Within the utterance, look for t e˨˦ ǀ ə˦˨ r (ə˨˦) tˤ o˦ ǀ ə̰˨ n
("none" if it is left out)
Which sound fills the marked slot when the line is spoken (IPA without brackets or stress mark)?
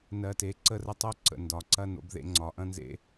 ə˦